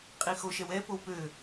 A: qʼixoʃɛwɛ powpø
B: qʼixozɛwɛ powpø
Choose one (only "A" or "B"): A